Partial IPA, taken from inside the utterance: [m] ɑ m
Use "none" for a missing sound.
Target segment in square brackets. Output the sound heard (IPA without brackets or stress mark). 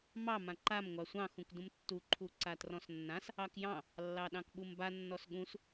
m